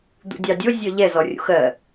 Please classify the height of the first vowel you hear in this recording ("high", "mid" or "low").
high